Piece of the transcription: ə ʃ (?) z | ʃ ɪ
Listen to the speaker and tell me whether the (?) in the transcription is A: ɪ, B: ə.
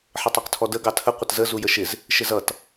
A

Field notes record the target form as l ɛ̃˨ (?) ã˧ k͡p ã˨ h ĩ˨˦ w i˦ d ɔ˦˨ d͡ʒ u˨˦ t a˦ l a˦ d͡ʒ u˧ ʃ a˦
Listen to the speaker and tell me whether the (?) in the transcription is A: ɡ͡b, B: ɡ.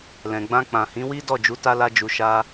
A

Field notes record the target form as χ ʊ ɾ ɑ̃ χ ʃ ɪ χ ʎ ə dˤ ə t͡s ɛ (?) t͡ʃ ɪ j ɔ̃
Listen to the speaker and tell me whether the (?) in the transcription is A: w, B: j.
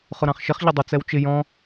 A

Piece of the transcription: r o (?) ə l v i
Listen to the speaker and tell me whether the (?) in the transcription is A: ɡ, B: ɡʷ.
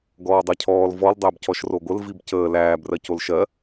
B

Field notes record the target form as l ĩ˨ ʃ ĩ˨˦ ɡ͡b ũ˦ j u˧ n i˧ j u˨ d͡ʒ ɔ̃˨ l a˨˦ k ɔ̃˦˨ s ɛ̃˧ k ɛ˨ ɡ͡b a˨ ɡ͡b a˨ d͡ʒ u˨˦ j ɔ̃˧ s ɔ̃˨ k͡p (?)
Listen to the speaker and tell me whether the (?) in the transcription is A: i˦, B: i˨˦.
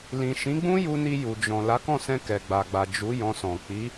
B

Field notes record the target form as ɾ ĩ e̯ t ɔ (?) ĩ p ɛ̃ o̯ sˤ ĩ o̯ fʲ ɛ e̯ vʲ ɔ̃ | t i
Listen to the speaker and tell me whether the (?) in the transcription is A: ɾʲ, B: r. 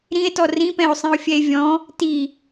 B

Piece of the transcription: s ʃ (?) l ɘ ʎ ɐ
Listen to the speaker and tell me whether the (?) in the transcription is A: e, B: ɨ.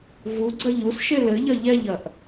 A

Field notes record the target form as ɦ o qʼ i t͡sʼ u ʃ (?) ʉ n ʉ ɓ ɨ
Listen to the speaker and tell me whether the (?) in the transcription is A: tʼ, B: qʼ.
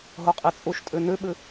A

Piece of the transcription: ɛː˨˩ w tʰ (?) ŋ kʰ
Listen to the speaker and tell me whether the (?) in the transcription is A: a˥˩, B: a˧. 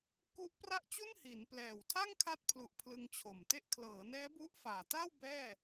A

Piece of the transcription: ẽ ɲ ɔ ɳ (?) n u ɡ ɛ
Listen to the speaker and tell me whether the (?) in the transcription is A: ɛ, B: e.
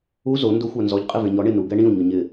B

